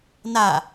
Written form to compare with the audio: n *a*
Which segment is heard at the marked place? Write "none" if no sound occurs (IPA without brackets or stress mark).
a